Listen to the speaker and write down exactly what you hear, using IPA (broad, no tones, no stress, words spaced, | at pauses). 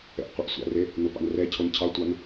ɛ̰ʔqʷʌʔsʷa̰re | nopɑ̰nrɛcʰon cʰɑtʷan